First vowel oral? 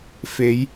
yes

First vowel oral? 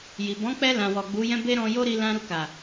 yes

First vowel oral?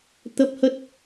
yes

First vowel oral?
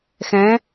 no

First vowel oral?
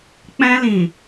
no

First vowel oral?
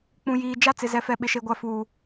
no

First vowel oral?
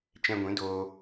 no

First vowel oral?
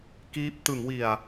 yes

